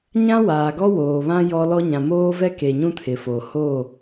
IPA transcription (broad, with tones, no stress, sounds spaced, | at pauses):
ɲ ã˦ w aː˨ ɡ ɔ˦ w oː˨ β ã˦ j ɔ˦ l ɔ˦ ɲ ã˨ m oː˦ v ɛ˦ k e˨ ɲ ũ˦ tʰ ɪ˨ f o˨ h o˦˨